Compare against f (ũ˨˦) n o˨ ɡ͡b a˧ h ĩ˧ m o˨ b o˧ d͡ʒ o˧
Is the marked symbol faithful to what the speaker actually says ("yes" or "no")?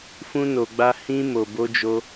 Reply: no